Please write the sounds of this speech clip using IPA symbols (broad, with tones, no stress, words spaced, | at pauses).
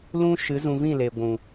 lũ˦ʃɨ˨˦ zũ˧vĩ˦˨le˨ ɡʷũ˨